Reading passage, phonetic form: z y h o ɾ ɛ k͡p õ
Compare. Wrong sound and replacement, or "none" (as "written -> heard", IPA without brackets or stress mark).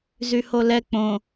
ɾ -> l